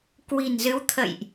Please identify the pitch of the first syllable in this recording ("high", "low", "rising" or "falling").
low